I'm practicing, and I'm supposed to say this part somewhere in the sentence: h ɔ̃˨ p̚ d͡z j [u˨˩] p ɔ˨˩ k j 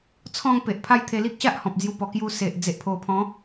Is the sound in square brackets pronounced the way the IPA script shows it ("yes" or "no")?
no